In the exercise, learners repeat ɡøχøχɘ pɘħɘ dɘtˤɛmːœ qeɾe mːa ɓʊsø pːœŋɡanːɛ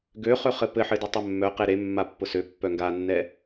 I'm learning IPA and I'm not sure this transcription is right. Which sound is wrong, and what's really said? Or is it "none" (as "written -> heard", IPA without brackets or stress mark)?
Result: ɓ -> pː